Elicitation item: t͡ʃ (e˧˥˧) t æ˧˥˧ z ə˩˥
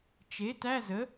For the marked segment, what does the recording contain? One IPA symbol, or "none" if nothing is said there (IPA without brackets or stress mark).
e˩˥